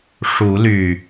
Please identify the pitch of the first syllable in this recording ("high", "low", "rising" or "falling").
rising